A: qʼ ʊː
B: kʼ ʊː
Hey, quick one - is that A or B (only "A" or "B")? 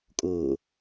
B